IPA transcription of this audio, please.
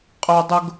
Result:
qʼ œ˥ dˤ ʊ˥ ɡ

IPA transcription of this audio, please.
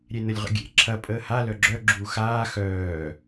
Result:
ɾʲ e n ə lʲ ʁ ə̰ ɡʲ ḛ ǁʰ ɐ pʼ əː h a l œ ɡ͡ǁ œ ɡ͡ǁ uː x aː x œː

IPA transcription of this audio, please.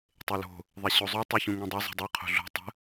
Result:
tˤ e l o̤ | ðˤ e ɕ o zˤ ʉ tˤ ʉ ç ũ ŋ õ dˤ ɛ zˤ o̤ dˤ ʉ qʰ o̤ ɮ o̤ tˤ ə̤

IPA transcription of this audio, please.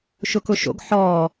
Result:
ʃ ʊ k ʊ ʃ o̰ ɡ ħ ɔː

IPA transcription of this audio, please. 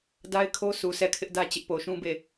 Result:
d a˦ ɪ̯ kʰ o˦ s u˨ sʰ ɛ˦˨ kʰ ɪ˦ ʔ d ä˦ t͡ɕ ɪ˦ ʔ p o˨ ʃ ũ˦ b e˦˨

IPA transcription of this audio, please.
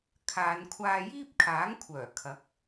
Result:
kʰ aː˨˧ n kʷʰ aː˧ j iː˥ p̚ kʰ aː˨˥ ŋ kʷʰ œː˨˩ kʰ ɐ˨˥ k̚

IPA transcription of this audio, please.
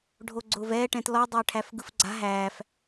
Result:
ɖʱ o ɡ͡ǀ ʊː v ɛː ʈ ɛ̃ t l ɔ dˤ ʊː ʈʰ æ f ɡ ɯ f ɡ͡ǀ a̤ ɦ æː f

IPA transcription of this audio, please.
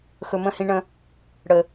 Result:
x ɵ˨ m ə̃˦˨ h ĩ˧ ɳ ə̃˧ | ɽ ə˨

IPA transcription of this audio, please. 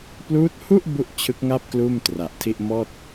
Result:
p l uː˦˥ t̚ h u˥˩ ʔ b u˥˩ ʔ t͡ɕʰ ɯ˦˥ k̚ ŋ a˥˩ p̚ k l uː˥˩ m t r a˨˩ ʔ tʰ i˥˩ ʔ m ɔː˥˩ t̚

